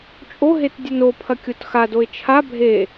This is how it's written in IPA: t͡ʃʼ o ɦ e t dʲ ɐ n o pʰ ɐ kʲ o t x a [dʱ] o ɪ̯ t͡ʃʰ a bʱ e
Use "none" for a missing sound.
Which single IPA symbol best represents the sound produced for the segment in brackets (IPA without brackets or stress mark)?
d